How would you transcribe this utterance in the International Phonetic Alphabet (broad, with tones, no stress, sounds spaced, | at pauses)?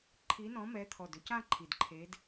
ǃʰ i˨˦ n ɔ̃˨˦ m ɛ˨˦ t̪ʰ ɔ˨˩ d ʏ˥˧ c ã˥˧ ǃʰ i˨˩ d ǃʰ e˨˦ d